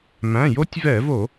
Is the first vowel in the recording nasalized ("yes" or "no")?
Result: yes